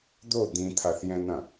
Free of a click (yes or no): yes